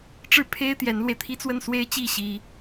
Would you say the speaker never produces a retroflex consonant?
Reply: no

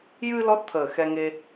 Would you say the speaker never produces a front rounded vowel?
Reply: yes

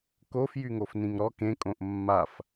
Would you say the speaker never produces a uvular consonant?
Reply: yes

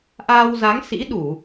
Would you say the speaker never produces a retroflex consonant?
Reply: yes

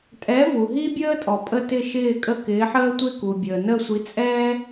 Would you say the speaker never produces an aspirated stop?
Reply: yes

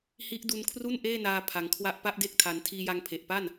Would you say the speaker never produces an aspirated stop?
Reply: no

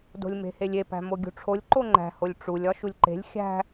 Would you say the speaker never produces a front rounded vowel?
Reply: yes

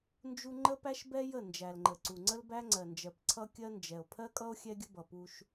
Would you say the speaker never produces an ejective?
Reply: no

